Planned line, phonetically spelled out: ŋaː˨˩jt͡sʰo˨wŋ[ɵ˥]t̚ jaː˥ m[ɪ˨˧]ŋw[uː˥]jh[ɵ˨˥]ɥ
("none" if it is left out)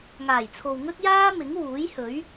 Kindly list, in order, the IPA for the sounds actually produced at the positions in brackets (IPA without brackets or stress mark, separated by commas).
ɵ˥, ɪ˨˥, uː˨˥, ɵ˨˥